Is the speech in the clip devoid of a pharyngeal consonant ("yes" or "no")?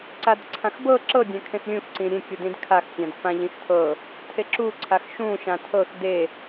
yes